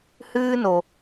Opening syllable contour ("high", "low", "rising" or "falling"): high